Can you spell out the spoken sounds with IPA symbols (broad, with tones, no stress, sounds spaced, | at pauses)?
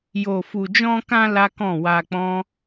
j o˨ f u˨ d͡ʒ ɔ̃˧ k ã˧ l a˦ k ɔ̃˦˨ w a˧ k͡p ɔ̃˦